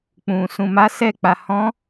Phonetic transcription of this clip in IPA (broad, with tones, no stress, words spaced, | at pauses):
k͡pũ˨ sũ˨ma˨˦sɛ˧k͡pa˨ hɔ̃˨˦